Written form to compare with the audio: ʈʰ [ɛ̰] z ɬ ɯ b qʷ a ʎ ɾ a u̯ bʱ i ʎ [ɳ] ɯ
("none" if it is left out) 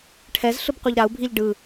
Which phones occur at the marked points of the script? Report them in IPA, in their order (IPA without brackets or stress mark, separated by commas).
ɛ, ɖ